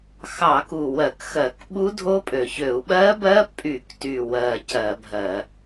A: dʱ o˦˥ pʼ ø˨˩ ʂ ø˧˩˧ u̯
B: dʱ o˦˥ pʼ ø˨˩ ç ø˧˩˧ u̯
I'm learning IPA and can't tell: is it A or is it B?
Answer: B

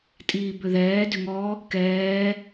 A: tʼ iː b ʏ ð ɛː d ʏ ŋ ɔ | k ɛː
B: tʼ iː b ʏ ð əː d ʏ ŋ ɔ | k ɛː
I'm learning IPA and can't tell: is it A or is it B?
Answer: A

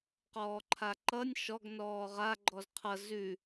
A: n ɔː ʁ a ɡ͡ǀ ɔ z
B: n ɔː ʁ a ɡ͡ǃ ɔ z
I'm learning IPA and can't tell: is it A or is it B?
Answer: B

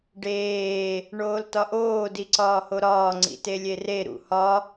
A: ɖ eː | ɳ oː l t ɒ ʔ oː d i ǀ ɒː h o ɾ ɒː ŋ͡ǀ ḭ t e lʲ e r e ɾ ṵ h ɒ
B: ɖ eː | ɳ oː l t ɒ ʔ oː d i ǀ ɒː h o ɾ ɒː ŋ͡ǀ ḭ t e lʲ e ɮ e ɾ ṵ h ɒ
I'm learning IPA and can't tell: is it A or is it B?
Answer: A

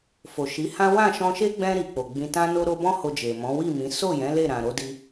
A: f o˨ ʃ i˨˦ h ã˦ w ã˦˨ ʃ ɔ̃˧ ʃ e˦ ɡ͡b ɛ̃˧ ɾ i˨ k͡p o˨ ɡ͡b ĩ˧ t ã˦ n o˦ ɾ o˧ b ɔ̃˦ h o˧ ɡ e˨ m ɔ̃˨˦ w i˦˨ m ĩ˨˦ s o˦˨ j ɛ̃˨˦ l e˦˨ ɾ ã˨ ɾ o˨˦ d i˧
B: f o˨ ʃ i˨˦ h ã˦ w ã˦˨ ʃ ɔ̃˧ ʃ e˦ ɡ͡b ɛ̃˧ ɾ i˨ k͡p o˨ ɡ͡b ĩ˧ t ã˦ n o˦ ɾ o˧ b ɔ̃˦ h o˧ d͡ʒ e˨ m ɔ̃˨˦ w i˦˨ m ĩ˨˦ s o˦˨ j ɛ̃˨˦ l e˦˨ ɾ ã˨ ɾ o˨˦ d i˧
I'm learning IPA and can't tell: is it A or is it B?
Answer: B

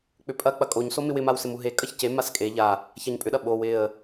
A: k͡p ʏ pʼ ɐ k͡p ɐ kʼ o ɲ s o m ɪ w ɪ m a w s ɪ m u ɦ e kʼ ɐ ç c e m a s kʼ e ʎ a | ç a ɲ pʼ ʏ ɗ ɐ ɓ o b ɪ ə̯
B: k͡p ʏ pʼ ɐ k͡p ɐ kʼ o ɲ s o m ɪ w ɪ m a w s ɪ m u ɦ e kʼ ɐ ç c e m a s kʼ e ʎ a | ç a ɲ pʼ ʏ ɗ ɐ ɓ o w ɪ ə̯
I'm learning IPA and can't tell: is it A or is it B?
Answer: B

